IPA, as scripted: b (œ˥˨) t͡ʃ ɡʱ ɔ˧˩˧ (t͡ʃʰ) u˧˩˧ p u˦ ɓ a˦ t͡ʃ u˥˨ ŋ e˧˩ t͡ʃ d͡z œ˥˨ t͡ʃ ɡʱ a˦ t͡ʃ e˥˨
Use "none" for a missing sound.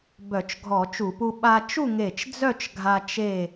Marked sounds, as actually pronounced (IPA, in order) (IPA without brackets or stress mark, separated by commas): œ˧˩˧, t͡ʃ